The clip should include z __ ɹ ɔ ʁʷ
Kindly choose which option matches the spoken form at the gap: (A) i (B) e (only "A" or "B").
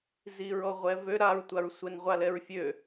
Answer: A